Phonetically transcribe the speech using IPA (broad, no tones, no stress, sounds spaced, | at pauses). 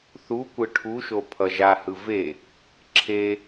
θ u kʷ ɯ ʈʰ u ʃ o pʰ ʌ ʒ a h ɯ v e | ǁʰ e